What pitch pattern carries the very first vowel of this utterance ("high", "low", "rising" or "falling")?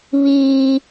high